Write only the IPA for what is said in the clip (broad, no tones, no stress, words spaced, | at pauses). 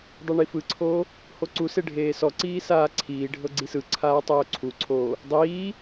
dˤeɳifɯǀʰoː | hoǀuse ɖʱeːsɔǀiː saːǀʰiːɖʱɤ ɡ͡ǀisɯǀʰaː tˤoːǀʰuǀʰoː | dˤiː